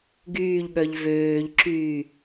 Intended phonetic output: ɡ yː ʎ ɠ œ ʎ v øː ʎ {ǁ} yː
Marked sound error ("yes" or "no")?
no